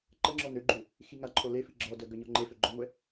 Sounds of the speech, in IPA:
ǃ ə ŋ͡ǁ ɔ n ø ɡ͡ǃ ø | x i ŋ a ǃʰ o l e f i ɡ͡ǁ ɔ d œ ɡ œ ɲ ɔ ŋ͡ǃ e f ø ɡ͡ǃ ɔ ŋʷ ɛ

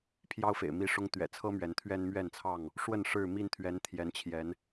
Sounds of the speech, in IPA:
pʰ j ɑ˦ ʊ̯ f ḛ˨˩ ɪ̯ m i˥˨ ʂ ʊ˦ ŋ t̪ ɥ ɛ̰˨˩ t͡sʰ ɤ˦ m ɥ ɛ˨˦ n t̪ʰ ɥ ɛ˦ n m ɥ ɛ˥˨ n t͡sʰ ɑ˥˨ ŋ | ʂ w ə˥˨ n ʂ ɻ̩˥˨ m i˥˨ n t̪ʰ ɥ ɛ˨˦ n t̪ʰ j ɛ˨˦ n t͡ɕʰ j ɛ˨˦ n

